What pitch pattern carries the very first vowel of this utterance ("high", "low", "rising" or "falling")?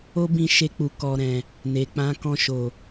high